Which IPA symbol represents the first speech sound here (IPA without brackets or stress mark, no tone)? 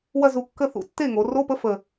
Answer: w